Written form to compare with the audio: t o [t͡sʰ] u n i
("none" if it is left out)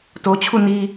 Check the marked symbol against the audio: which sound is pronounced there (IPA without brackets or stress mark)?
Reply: t͡ɕʰ